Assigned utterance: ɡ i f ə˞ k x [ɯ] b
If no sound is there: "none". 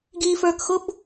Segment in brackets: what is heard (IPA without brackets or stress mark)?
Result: ʊ